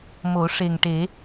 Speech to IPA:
mo˨˩˦ʂe˨˩ŋʈe˨˩˦

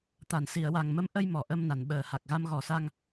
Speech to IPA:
t̪a˨˩˨nsi˨˩˨ə̯wa˨˩ŋmə˧˥m ʔə˧j mɔ˨˩˨ʔə˧mna˨˩˨n ɓəː˨˩ha˨˩k̚ ɣa˧mɣɔ˨˩sa˧ŋ

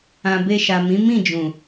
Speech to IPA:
ã˨be˧ʃa˨mĩ˨˦ mĩ˦˨d͡ʒũ˨

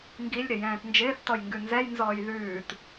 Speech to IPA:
ŋɡilʲ ɾɪjɛ̃ːtnd͡ʒɪːθtɔj ŋɡʉnzɛjnzɔːj ðʉːt

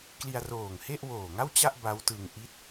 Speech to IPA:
kli˧a̯roː˨˩ŋhe˥˩ʔ woː˨˩ŋa˥˩wt͡ɕa˥˩ʔ ba˦˥wtɯ˧ŋ ʔi˥˩t̚

